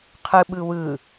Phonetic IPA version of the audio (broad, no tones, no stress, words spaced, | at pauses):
qʰɯɓɯ wɯ